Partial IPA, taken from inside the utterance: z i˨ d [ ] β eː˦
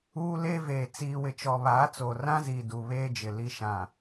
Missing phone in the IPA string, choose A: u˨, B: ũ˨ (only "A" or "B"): A